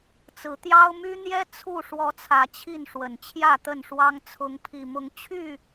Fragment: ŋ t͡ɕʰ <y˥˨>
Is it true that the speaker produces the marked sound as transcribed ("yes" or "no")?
yes